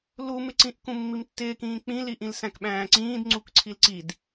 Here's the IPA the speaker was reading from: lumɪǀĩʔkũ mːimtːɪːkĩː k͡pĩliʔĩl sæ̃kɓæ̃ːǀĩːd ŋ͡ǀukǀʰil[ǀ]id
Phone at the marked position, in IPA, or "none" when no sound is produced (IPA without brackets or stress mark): ǀ